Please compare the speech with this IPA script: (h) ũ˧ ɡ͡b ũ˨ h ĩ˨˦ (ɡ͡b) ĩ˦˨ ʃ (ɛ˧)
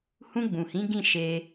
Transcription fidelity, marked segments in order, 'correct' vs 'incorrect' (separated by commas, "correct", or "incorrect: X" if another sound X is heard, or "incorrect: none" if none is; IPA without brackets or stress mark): correct, incorrect: ɡ, incorrect: e˧